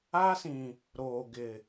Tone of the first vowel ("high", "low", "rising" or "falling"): high